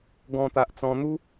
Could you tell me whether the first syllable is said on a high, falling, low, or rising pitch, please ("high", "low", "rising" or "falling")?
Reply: high